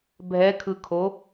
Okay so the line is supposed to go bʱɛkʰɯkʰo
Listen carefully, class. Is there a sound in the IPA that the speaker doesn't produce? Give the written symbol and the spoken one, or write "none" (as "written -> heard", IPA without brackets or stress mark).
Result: none